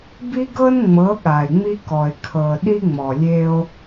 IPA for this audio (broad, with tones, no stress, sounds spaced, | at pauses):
b i˦ ɡ ɤ˦ n ŋ͡m ɤ˨˦ ɠ a˨ e̯ ŋ͡m i˦ k ɔ˨ e̯ kʰ ɤ˨ ɗ i˦ ŋ͡m ɔ˨ lʲ e˦ o̯